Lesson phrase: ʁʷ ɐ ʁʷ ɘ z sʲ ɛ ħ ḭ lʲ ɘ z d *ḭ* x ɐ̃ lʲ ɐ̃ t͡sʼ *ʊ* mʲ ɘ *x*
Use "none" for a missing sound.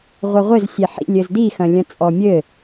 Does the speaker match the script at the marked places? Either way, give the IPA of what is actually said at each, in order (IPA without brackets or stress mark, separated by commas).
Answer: i, ɔ, none